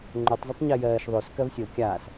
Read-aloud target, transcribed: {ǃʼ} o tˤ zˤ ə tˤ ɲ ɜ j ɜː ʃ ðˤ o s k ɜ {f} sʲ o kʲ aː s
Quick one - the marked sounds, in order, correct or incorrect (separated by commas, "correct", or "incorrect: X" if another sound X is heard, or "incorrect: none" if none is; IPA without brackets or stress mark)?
incorrect: ŋ͡ǃ, incorrect: v